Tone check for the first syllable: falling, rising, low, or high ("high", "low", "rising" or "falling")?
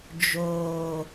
low